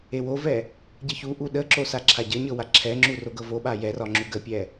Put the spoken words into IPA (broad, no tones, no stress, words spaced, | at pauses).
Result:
ewovɛ | ɟəçuʔu ɗəǁo saǁʰaɟəɲɤ waǁʰɛŋ͡ǁu roɡɤvoɓa jɛrɒ ŋ͡ǁuɡəpʲɛ